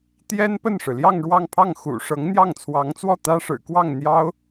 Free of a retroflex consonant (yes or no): no